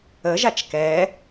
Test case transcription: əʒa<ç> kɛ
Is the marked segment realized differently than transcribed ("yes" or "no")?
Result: yes